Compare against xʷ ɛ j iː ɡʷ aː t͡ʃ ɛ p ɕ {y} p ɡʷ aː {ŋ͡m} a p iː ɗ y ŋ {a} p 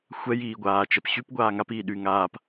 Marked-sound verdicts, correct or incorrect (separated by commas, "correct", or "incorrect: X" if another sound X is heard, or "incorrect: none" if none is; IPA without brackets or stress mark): correct, incorrect: ŋ, incorrect: aː